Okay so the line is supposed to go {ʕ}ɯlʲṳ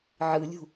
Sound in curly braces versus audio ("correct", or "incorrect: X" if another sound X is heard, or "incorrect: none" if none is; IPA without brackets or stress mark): correct